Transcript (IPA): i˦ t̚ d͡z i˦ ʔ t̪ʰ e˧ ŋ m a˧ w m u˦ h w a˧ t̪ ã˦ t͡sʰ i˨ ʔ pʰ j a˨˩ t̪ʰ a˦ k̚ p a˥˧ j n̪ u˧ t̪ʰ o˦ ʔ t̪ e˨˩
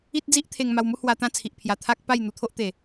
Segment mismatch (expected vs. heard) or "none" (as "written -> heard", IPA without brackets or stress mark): none